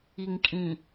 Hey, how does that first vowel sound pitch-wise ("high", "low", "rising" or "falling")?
low